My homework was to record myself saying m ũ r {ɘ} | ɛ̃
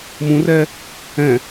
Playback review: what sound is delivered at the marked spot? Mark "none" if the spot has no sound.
ɛ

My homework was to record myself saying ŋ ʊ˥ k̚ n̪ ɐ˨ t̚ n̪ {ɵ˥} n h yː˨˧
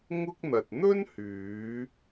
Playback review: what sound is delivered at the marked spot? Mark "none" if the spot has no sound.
ɵ˥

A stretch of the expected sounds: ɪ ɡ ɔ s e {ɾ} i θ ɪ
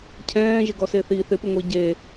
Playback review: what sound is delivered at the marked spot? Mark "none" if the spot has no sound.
θ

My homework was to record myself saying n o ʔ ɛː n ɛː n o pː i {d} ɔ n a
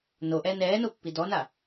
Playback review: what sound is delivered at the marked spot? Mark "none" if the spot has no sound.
d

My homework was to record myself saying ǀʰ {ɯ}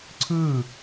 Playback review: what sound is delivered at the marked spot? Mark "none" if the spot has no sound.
ɯ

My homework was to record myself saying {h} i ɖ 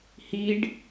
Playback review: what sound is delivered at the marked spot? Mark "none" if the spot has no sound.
h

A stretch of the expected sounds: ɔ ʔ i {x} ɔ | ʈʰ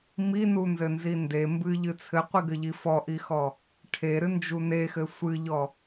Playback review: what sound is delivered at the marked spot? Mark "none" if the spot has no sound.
x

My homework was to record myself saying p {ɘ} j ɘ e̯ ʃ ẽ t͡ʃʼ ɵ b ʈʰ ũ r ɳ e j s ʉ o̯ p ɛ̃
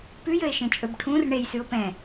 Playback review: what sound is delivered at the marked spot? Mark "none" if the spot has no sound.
ʉ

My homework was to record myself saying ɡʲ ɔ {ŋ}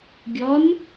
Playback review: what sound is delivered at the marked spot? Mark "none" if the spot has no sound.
n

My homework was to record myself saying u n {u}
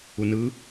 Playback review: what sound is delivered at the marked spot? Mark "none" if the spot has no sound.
ɯ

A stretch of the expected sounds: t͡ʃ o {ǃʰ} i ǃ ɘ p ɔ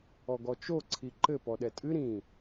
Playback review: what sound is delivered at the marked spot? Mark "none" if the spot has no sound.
ǀʰ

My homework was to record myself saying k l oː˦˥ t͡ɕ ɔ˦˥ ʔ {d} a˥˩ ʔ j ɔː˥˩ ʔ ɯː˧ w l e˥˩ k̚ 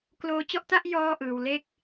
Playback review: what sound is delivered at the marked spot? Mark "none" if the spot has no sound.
t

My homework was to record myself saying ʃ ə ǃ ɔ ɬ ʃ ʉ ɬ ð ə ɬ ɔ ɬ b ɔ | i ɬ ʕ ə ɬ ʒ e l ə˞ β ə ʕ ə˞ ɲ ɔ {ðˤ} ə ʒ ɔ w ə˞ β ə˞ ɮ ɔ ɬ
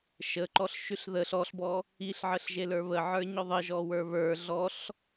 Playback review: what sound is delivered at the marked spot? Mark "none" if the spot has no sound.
ðˤ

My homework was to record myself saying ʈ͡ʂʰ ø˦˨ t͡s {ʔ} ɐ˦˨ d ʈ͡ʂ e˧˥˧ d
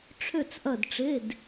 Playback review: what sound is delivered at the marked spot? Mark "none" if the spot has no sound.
ʔ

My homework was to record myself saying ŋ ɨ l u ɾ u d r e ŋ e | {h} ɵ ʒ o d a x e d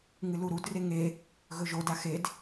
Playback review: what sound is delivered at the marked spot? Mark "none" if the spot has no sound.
ɣ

